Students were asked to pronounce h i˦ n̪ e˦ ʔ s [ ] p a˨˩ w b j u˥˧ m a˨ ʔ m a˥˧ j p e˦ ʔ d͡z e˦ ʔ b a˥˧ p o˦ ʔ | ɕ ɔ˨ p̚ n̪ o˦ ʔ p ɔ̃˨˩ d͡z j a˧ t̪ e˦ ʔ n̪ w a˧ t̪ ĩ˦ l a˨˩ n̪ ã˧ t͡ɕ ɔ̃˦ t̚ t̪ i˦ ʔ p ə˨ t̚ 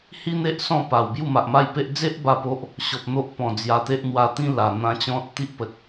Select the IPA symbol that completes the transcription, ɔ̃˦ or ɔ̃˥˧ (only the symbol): ɔ̃˥˧